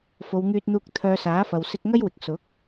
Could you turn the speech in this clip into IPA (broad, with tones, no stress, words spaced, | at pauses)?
fo˨˧wŋyː˧t̚n̪uː˧k̚ t̪ʰœː˧saː˨˥ fɐ˨wsɪ˧k̚ŋɐ˥jwɪ˨k̚ sʊ˨˥k̚